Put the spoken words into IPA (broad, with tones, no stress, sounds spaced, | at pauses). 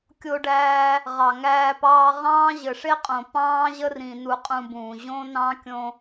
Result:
kʲ o˧ ɖ æː˧ | ʁ ɑ˨ ŋ æː˧ p ɑː˧ ʁ ɑ̃ː˦ ʑ ɘ˨ ʂ e˦ qʼ õ˨ p ɑ̃ː˦ ʑ ə˦ r ĩ˧ n u˧ qʼ ũ˧ b ũː˨ ʑ õ˦ n ɑ̃˦ kʲ õ˧